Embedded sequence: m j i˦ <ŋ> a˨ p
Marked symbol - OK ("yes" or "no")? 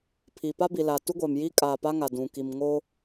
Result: no